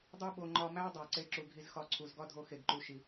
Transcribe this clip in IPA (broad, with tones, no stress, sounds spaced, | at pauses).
dˤ u˧ ɓ o˨ ŋ͡ǃ ɒ˧ m æ˦ dˤ æ˨ ǀ e˧ ǁ u˨ ɡʱ i˧ z x ɒ˧ ǀʰ u˨ z ɡ ɒ˦ dʱ o˧ x e˨ ɡ ǃ u˨ ʃ i˨